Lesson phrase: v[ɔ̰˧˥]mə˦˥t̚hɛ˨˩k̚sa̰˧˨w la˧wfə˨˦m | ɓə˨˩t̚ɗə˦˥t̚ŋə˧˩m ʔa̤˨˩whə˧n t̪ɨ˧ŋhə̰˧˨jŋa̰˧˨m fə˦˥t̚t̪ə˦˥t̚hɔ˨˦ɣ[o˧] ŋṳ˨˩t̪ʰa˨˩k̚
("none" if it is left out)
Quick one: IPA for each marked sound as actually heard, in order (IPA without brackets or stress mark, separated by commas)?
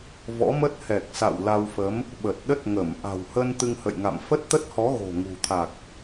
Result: ɔ̰˧˥, o̤˨˩